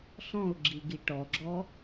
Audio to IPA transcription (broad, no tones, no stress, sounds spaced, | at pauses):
ɬ ɔ̃ ʊ̯ ɡ͡ǁ i ɡ i ʈ ɔ ɡ͡ǁ ɔ